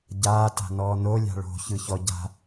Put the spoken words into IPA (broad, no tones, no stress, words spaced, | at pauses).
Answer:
ɟaːta̤nɔː nolʲa̤ ɭo̤çɯçɔ ɟa̤